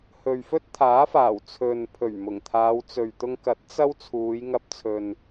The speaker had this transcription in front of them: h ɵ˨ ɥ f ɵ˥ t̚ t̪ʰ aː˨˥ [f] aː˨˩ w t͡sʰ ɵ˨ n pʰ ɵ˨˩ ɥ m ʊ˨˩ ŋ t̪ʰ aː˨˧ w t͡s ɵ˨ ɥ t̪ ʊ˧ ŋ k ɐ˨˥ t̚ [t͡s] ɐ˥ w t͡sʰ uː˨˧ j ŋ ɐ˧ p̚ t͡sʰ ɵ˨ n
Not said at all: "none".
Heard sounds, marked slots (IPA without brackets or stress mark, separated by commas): f, t͡s